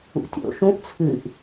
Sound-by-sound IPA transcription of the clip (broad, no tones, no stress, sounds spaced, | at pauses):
ṵ tʲ o̰ ʃ ũ ʔ t͡sʰ ɨ ʔ